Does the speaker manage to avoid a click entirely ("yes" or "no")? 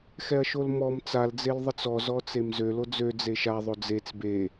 yes